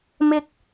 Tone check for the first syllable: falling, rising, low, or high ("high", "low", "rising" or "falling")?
high